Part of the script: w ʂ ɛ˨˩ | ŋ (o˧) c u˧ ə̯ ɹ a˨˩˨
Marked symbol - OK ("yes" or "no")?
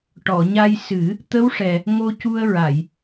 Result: yes